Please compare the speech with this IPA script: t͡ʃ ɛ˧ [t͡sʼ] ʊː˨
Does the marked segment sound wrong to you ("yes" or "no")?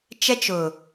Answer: yes